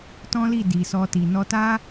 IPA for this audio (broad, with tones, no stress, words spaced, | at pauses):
tɔ̃˦li˦˨ di˨sɔ˧ti˨ nɔ˧ta˦